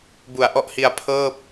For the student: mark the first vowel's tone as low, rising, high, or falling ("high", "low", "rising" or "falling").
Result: low